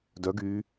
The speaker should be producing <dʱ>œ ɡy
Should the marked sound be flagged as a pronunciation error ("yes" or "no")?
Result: yes